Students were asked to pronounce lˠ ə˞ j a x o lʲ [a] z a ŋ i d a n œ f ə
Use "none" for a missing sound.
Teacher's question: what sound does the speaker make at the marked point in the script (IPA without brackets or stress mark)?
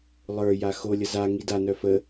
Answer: ə